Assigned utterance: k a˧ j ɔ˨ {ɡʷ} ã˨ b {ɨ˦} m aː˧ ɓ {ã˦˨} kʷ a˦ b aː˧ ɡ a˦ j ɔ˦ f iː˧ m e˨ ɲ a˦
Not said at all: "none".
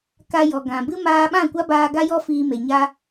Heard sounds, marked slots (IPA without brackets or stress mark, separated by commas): ɡ, ɨ˦, ã˦˨